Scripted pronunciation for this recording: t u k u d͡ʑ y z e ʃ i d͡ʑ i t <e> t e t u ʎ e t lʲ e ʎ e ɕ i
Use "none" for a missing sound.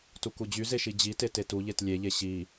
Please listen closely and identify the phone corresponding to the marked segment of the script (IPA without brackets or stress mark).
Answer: e